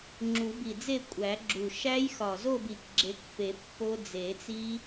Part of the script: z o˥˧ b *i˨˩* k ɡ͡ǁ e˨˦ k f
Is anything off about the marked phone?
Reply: no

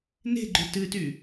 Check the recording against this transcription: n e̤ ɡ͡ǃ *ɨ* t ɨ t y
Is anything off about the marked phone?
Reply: yes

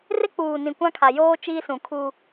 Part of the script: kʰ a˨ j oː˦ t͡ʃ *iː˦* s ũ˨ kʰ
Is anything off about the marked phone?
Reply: no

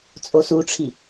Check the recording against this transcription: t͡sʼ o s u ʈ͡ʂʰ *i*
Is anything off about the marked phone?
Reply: no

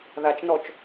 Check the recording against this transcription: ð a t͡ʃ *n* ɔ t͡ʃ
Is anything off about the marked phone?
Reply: no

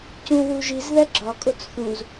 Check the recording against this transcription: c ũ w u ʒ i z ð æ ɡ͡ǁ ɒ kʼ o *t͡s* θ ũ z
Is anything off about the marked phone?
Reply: no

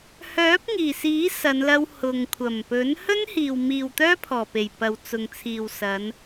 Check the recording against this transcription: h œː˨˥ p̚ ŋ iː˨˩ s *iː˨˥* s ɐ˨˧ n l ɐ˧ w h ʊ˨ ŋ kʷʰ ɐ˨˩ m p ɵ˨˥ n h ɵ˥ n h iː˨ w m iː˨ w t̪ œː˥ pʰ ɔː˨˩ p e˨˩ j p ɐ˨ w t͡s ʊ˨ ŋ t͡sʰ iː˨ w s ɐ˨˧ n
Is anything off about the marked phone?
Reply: no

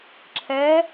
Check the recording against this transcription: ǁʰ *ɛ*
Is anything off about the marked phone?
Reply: no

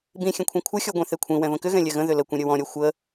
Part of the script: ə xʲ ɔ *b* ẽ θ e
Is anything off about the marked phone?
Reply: yes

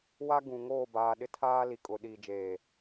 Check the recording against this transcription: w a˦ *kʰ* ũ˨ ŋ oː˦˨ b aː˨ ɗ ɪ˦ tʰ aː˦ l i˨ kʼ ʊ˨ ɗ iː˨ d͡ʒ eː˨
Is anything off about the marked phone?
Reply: yes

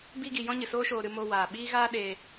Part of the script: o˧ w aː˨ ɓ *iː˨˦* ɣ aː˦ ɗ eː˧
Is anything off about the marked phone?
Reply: yes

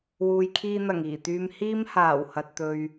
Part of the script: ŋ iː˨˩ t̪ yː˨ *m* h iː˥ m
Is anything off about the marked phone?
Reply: no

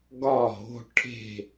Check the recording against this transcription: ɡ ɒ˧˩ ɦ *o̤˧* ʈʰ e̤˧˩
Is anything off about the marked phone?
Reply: no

